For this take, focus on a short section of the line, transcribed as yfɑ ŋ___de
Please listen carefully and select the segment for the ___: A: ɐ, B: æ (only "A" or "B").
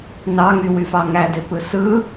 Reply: B